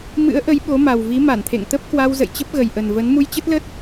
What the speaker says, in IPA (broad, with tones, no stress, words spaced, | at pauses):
mɨ̰˧˥ə̯ʔə˨˦j ɓo˨˦ma˨˩wvi˨˦ ma˧˩nt̪ʰḛ˧˨ŋt̪ə˦˥p̚kwa˧w zə̰˧˨jt͡ɕə˦˥p̚ɣə˨˩jʔə˨˩n və˨˦n mu˧jt͡ɕə˦˥t̚lə˦˥t̚